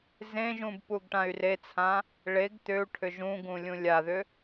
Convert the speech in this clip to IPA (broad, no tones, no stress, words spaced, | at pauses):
zẽʒũb puɡʈãy̯ret͡sʰã | ɭeɡ t̪ʏu̯ʈʰʏ ʒũɡũ lʲũlʲaðʏ